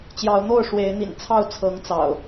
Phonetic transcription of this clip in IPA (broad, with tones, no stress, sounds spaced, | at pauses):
t͡ɕ j ɑ˨˦ ʊ̯ n̪ o˥˨ ʊ̯ ʂ w e˨˦ ɪ̯ n̪ ḭ˨˩ n t͡sʰ ɑ˥˨ ʊ̯ t͡sʰ ɤ˨˦ ŋ t͡s ɑ̰˨˩ ʊ̯